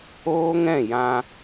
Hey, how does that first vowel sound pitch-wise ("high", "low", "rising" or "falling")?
high